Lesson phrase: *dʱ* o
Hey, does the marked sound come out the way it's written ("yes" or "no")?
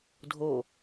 yes